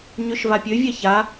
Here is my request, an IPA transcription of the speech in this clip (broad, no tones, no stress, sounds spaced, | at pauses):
ɲ ø ʃ v a pʲ ø vʲ ɛ ç a